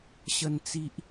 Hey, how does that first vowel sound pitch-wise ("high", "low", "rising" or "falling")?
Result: low